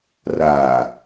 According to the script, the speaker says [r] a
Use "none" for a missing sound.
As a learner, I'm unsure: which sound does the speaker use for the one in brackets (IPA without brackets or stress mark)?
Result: r